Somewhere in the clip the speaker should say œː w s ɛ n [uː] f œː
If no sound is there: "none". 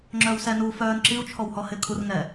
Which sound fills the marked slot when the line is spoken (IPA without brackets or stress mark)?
uː